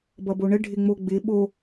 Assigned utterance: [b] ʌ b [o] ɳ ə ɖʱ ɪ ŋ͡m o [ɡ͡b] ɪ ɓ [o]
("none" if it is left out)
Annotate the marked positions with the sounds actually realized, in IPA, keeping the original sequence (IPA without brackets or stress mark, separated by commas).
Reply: b, o, ɡ͡b, o